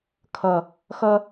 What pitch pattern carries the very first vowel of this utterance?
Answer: low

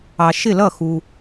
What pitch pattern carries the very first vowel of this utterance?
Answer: low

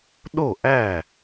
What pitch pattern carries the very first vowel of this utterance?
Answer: falling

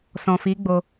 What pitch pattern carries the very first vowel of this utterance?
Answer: low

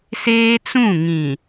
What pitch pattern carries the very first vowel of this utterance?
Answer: high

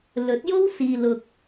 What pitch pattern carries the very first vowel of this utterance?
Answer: rising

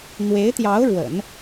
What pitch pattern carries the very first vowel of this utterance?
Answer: rising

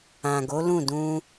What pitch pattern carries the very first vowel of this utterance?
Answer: low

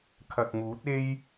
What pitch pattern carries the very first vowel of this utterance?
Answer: low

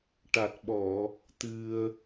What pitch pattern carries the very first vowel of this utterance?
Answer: low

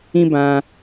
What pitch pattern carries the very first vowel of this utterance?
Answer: high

